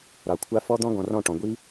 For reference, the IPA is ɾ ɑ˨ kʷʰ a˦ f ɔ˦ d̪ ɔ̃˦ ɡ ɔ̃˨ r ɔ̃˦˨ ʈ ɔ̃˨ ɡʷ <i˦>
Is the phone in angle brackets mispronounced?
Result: no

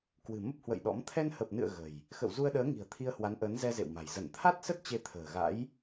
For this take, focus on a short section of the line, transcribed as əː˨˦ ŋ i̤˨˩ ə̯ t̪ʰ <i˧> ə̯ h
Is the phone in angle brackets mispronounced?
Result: no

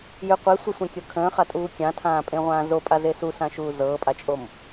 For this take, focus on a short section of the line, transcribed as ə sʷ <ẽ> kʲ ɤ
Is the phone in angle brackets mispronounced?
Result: no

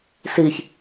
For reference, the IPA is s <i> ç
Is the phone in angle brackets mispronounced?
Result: no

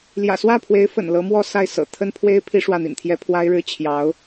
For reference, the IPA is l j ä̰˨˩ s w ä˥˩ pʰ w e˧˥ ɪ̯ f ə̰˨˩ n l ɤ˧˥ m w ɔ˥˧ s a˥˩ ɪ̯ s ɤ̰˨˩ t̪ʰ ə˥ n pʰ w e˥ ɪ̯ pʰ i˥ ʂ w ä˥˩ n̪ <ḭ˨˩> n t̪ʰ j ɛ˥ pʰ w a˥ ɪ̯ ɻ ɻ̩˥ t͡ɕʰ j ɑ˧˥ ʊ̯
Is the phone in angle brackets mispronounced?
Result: no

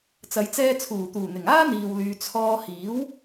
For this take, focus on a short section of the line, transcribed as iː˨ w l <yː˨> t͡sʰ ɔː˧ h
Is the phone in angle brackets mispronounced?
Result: no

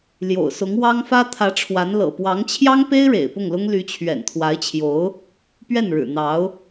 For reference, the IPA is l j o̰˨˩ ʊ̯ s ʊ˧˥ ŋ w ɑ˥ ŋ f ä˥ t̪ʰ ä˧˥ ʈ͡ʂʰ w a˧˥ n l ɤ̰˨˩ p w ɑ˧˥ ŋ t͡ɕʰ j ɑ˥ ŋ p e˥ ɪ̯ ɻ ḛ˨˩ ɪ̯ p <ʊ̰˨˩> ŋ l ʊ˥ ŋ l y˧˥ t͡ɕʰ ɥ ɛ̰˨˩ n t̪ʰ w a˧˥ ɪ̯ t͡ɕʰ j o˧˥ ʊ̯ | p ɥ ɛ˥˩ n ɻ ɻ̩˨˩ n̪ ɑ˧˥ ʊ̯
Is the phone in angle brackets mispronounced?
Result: yes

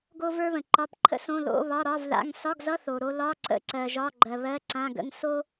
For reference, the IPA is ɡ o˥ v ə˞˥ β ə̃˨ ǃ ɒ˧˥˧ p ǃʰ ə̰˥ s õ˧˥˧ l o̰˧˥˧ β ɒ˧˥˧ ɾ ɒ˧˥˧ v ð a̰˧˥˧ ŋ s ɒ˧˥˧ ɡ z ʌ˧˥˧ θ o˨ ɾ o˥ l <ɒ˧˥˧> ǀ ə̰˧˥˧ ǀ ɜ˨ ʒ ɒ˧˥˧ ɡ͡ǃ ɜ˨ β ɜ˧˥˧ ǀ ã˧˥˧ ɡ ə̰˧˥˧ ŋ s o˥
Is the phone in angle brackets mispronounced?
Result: no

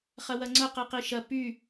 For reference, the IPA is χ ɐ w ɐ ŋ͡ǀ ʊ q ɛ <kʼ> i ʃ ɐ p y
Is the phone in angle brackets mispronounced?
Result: yes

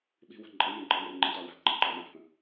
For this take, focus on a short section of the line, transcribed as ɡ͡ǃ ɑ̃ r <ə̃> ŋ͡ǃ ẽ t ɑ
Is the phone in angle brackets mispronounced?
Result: yes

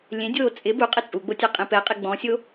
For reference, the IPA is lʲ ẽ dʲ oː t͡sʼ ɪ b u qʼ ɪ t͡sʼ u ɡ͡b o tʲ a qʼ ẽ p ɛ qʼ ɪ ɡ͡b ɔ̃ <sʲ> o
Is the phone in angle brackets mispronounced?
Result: no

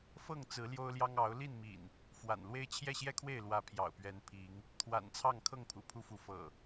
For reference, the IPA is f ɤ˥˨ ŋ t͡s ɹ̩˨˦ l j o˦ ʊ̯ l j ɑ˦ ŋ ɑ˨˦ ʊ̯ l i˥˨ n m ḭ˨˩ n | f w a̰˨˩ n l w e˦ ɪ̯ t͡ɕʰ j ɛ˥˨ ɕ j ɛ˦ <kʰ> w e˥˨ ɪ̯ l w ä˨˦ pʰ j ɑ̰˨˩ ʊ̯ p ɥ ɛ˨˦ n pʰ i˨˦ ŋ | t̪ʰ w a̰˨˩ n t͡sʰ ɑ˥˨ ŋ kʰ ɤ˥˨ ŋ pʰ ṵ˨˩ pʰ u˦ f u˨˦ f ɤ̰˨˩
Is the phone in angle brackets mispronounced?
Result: no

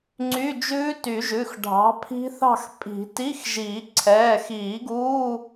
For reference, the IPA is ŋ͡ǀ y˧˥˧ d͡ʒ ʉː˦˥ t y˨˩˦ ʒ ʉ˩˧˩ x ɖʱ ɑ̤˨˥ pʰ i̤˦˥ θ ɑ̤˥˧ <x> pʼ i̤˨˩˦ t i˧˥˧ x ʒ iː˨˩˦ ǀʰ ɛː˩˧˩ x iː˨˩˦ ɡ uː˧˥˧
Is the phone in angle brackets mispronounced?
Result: no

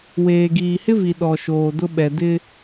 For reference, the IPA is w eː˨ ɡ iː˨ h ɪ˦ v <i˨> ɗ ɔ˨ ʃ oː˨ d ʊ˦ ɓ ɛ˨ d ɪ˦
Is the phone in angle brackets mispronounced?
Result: no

